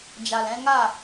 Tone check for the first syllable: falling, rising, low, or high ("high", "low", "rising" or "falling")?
low